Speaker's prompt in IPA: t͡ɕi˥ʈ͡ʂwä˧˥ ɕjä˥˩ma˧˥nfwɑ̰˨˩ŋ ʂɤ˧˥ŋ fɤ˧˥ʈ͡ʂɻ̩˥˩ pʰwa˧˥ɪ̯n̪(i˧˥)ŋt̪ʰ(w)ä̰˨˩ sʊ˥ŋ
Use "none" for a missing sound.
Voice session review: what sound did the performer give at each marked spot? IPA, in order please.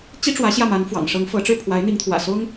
i˧˥, w

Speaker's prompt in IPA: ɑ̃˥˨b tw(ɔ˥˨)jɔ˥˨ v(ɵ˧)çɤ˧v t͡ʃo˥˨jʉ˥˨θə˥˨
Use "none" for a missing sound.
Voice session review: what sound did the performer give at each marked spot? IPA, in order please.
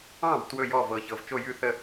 ɵ˥˨, ɤ˧

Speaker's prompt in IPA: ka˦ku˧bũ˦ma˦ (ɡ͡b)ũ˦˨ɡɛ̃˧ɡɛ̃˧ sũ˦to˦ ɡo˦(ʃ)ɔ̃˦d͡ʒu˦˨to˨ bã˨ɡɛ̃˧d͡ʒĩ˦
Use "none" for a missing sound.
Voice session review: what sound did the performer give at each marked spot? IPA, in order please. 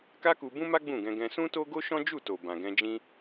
ɡ͡b, ʃ

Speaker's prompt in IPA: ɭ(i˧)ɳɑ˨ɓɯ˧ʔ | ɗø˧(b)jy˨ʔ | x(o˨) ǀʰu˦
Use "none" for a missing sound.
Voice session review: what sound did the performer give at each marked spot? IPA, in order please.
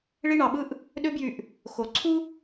i˧, b, o˨

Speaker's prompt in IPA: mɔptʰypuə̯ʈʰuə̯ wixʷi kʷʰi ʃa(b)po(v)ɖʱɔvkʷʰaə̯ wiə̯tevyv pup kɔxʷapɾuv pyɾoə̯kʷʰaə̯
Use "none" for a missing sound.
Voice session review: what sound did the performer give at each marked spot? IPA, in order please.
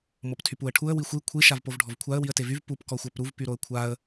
v, v

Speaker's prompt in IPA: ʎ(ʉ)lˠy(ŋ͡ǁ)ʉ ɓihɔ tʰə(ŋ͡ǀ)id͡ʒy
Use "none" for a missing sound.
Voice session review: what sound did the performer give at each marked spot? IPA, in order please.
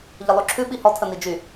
ə, ǁʰ, n

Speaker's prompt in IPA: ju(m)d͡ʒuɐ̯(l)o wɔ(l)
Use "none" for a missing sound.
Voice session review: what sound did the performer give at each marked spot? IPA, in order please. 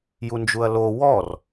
n, l, r

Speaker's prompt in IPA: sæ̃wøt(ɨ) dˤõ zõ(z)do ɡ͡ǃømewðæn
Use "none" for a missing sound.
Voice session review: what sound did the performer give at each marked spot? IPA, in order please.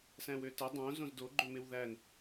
ə, z

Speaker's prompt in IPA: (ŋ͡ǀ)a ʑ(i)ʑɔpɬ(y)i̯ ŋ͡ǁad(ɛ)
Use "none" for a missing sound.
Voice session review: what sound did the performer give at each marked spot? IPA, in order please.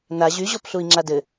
n, y, u, ɘ

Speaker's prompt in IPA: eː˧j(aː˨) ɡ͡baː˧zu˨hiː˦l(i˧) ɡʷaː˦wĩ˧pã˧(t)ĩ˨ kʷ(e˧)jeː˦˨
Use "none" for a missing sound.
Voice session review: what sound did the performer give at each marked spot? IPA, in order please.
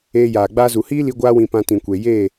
aː˨, i˧, t, e˨

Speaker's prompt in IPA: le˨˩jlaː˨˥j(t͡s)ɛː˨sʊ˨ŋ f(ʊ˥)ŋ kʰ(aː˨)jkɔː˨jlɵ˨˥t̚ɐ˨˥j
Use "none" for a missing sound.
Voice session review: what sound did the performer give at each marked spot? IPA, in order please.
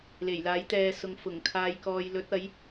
t̪, ʊ˨˩, aː˨

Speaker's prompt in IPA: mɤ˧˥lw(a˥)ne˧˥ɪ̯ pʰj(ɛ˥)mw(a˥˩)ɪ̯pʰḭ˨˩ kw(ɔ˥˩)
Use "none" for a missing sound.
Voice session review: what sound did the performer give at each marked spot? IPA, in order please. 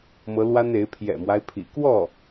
a˥, ɛ̰˨˩, a˦, ɔ˥˩

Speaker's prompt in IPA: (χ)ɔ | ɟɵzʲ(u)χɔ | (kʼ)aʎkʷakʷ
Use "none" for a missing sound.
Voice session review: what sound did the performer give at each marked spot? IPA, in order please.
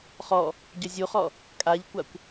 χ, u, kʼ

